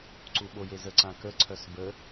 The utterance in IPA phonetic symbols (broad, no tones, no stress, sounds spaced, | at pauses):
ǀ u ɓ o j e z ə ǀ ã k ə ǀʰ œ s b ə